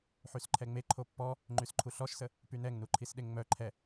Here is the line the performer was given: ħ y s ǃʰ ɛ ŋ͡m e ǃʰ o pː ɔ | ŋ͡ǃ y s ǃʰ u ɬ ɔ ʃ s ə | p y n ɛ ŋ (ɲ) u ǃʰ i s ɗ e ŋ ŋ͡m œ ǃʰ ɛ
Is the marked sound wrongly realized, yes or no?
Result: yes